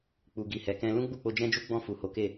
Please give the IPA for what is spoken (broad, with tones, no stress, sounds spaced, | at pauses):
k͡p u˨ ɡ i˨ h ɛ˨ k ɛ̃˧ l ũ˦ ɡ͡b u˦˨ k͡p o˧ d͡ʒ ɛ̃˦ d͡ʒ u˦ ɡ͡b ɔ̃˦˨ f u˨ h o˨˦ k e˦˨